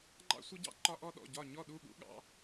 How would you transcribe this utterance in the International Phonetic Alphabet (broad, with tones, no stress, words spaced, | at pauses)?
ŋ͡ǃɑ̰˥sʷʌ˥ɟɑ̰˥ ǃɒ˥ʔɔ˥ɗɔ̰˥˨ ɟɒ˥˨ ɲɔ˥˨ɗu˥˨ɠṵ˥ ɠɑ̰˥